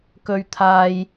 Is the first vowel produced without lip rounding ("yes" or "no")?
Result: no